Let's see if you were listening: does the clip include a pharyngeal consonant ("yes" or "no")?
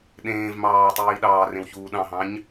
no